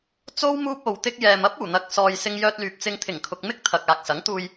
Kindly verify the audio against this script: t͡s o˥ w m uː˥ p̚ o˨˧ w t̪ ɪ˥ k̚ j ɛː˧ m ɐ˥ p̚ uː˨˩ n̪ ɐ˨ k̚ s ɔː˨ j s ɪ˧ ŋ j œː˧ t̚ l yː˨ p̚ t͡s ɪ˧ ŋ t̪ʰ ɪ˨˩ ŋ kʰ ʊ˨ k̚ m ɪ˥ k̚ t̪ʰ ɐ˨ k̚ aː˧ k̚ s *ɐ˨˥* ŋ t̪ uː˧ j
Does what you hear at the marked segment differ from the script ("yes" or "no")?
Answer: no